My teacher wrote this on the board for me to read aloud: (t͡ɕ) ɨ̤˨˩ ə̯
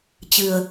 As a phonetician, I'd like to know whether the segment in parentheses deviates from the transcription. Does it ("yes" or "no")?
no